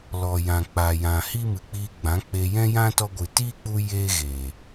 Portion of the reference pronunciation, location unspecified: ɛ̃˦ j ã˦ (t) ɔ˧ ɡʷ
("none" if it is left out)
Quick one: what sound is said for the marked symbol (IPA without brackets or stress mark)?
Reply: t